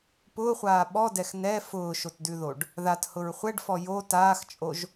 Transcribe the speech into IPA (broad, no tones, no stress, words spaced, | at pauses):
pʊːχʷaː ɓɔdɛx nɛ fʊːʃotdʉðoɖ | ðathʊɹ χʷɛɖfɔ jo taːxt͡ʃʼoʒ